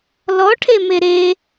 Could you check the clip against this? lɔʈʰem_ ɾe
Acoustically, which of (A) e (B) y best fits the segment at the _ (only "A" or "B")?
A